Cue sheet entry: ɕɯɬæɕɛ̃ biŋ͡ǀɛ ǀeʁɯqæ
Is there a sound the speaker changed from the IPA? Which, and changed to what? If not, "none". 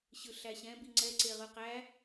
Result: none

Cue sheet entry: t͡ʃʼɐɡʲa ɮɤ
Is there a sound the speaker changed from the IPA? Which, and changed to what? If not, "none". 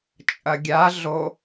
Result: ɤ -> o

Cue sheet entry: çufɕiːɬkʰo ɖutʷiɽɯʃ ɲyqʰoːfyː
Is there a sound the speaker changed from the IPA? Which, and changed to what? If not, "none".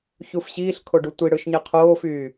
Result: y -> e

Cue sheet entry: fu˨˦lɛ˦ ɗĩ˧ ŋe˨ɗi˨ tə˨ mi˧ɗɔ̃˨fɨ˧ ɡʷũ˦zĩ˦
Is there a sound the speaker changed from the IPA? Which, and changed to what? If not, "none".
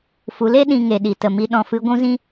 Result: ɛ˦ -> e˦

